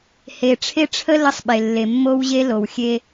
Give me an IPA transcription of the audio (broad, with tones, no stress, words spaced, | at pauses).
he˨ʈ͡ʂʰe˦ʈ͡ʂʰə˦ lə˦sˤɓe˨lːe˨ mːo˦wʑe˦ lo˨wxʲe˦